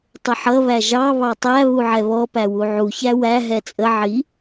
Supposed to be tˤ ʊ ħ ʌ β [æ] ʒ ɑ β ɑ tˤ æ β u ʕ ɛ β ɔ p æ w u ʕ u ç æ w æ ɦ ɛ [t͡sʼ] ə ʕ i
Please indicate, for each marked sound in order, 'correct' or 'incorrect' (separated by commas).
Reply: correct, correct